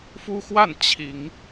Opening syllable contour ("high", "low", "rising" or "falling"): high